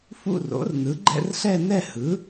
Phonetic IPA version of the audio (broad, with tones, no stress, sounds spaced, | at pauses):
f ṵ˥˧ r o̰˩˥ r n ɯ˩˥ ɡ͡ǃ ɛ̰˥˧ r ɬ ɛ˥˧ n ɛ˥˧ h ɯ˩˥